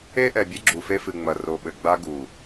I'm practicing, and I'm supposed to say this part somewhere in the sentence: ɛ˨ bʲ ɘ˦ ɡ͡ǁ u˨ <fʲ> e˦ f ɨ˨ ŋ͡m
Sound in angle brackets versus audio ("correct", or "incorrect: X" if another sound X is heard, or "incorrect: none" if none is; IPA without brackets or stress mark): incorrect: f